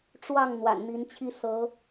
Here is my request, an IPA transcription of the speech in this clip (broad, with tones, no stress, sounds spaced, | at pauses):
ʈ͡ʂ w ɑ˥˨ ŋ n̪ w a̰˨˩ n n̪ i˨˦ n t͡ɕʰ i˦ s ɤ˨˦